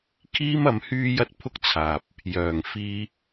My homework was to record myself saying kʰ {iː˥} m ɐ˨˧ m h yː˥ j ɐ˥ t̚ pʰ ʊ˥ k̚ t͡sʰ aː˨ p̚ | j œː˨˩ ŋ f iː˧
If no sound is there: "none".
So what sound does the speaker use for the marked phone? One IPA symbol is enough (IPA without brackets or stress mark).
iː˥